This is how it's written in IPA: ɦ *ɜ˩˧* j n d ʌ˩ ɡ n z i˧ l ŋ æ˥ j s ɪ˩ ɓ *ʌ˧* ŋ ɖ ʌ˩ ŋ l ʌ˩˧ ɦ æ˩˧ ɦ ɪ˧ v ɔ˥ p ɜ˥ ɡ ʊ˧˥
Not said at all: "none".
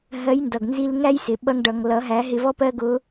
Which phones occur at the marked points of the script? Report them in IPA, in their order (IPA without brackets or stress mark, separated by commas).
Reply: ɜ˧˥, ʌ˧